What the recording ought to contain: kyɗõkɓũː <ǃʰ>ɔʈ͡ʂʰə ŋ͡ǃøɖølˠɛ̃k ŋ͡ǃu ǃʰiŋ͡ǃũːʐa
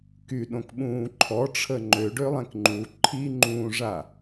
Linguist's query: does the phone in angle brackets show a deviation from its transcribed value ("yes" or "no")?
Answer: no